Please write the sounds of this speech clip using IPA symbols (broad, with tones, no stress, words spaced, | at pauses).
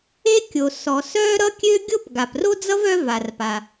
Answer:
e˥kʲo˩sɔ˩ sœ˥ɾʌ˥kʲø˥ ɡʲo˥p ɡa˩pro˥d͡zʌ˥v œ˥va˩rpa˩